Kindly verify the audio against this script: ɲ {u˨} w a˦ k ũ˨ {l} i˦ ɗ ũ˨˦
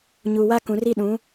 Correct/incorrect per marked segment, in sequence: correct, incorrect

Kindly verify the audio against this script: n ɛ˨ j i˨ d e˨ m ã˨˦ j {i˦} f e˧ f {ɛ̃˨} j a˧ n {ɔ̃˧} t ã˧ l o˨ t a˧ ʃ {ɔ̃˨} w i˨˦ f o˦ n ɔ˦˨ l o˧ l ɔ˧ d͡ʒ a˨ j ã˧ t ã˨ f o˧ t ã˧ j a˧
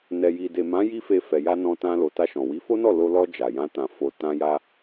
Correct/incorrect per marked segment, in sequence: correct, incorrect, correct, correct

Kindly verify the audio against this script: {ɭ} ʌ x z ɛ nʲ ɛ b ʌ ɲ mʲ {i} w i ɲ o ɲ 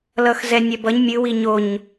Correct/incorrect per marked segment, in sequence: incorrect, incorrect

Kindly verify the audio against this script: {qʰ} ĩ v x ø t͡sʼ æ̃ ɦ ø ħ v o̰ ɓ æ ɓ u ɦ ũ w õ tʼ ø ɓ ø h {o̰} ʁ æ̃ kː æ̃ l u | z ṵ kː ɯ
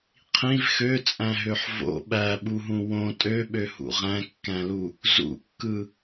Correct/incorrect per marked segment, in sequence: correct, incorrect

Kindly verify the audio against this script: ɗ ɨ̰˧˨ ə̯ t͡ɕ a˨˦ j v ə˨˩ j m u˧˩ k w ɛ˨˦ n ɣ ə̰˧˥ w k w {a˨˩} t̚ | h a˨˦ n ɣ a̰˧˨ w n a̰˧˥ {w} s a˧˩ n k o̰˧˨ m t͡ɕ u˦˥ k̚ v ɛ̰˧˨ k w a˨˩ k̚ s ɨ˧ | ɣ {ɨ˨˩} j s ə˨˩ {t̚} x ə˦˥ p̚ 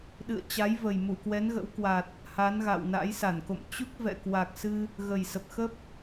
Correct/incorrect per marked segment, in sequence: correct, incorrect, incorrect, incorrect

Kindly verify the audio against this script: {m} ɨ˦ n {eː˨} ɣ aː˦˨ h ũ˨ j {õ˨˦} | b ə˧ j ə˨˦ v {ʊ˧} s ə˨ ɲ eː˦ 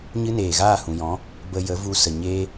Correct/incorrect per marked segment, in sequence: incorrect, correct, incorrect, incorrect

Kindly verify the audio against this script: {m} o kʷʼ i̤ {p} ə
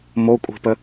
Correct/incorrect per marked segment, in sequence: correct, correct

